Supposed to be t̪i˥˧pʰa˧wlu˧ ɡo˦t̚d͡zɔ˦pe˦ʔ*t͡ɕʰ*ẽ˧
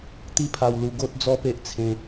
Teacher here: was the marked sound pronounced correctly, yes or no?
no